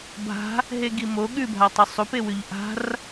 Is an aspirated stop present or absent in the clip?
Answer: absent